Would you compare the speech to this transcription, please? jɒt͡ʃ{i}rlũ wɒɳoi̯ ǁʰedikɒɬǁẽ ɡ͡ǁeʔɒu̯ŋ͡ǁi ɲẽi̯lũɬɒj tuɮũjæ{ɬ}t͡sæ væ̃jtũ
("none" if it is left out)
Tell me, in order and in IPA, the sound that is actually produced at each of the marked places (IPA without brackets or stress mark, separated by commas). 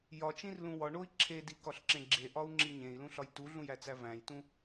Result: ĩ, none